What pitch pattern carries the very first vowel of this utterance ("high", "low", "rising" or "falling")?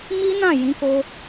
high